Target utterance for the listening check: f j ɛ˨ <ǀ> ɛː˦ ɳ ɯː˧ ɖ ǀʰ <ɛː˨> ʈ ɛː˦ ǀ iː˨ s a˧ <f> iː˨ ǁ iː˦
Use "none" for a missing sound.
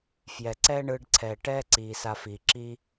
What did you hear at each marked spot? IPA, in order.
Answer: ǀ, ɛː˨, f

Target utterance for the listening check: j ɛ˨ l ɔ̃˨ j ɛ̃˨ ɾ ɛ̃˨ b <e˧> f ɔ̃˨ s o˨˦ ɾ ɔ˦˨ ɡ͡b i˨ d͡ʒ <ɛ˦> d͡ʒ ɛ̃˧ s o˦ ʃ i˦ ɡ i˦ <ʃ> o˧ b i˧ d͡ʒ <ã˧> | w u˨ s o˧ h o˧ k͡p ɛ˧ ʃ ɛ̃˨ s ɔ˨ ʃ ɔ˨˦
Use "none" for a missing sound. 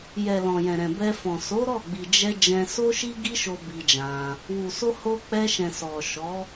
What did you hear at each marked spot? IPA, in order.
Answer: ɛ˧, ɛ˧, ʃ, ã˧

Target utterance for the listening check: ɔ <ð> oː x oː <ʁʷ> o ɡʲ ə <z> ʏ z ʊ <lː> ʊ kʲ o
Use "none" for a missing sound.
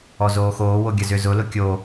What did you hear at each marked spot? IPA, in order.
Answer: z, w, z, l

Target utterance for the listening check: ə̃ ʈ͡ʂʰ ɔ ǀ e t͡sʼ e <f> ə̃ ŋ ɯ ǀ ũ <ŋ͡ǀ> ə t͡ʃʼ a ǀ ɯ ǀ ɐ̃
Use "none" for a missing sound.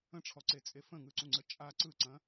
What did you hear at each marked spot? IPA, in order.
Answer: f, ŋ͡ǀ

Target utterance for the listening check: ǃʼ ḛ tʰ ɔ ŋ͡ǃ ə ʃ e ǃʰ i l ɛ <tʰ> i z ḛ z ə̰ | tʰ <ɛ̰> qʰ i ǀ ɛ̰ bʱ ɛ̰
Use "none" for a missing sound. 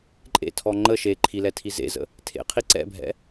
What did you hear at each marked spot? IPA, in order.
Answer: tʰ, ḛ

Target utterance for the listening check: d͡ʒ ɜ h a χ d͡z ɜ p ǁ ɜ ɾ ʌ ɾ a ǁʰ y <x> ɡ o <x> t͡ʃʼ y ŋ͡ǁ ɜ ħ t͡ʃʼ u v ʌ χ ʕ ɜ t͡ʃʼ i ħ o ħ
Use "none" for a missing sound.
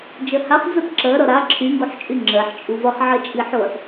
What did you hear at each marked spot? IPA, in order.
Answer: ŋ, ħ

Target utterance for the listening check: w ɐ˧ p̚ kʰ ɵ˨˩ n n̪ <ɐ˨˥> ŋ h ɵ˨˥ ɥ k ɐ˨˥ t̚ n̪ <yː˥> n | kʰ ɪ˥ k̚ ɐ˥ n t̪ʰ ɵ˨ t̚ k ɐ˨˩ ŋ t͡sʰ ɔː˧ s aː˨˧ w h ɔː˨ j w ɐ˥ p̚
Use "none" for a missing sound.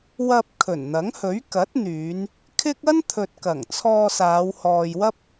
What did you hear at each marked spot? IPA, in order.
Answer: ɐ˨˥, yː˨˧

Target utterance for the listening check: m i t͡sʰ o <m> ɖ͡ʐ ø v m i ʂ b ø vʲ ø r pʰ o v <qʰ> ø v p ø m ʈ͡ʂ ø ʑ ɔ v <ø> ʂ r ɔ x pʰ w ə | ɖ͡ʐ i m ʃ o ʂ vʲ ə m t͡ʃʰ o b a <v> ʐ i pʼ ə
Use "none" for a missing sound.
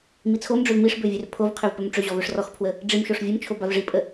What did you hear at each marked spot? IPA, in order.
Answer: m, qʰ, ø, v

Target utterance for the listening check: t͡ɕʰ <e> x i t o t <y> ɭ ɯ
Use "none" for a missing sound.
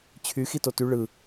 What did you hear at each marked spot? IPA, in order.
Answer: y, y

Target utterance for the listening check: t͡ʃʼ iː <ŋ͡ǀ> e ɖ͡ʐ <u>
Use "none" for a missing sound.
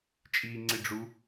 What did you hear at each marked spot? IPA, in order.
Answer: ŋ͡ǀ, u

